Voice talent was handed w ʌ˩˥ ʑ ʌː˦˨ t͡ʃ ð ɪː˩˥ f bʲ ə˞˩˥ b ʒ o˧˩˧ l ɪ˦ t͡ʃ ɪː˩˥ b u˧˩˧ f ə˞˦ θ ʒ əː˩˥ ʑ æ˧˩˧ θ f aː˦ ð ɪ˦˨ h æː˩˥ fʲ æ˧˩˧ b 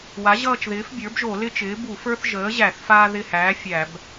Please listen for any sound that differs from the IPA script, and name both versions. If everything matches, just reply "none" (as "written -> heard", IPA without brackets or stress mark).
ʌ˩˥ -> a˩˥